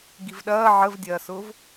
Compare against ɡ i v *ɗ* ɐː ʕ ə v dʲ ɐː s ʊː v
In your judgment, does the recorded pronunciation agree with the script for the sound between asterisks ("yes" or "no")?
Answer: yes